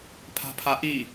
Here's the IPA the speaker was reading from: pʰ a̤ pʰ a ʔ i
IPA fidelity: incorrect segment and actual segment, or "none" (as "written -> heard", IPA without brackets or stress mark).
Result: none